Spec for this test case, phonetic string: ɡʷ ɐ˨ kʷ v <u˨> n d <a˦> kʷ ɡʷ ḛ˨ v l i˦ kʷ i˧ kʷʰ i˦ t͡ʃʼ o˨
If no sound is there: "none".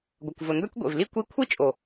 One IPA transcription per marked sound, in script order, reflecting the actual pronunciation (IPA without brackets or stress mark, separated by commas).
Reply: ʊ˨, ɐ˦